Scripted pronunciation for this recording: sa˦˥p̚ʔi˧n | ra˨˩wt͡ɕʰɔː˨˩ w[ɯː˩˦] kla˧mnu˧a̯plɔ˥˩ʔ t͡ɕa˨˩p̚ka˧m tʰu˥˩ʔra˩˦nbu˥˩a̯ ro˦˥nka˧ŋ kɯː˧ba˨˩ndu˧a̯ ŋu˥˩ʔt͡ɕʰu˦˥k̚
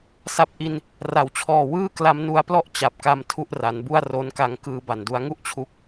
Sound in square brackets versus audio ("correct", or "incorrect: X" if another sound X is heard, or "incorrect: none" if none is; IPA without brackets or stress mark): incorrect: ɯː˥˩